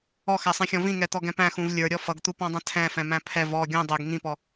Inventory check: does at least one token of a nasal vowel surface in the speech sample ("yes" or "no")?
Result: yes